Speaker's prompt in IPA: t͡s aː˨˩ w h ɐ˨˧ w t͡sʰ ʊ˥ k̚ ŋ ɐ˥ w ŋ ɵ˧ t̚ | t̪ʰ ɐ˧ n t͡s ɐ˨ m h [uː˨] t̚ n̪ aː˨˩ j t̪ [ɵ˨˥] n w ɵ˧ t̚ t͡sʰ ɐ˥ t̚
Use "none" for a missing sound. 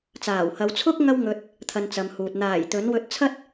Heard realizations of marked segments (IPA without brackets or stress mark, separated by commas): uː˨, ɵ˨˥